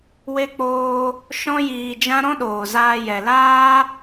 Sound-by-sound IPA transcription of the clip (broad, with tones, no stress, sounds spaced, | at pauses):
w e˦ k͡p oː˦ | ʃ ɔ̃˦ j iː˧ d͡ʒ ã˦ ɾ ɔ̃˦ ɗ oː˨ z aː˧ j ɛ˨ l aː˦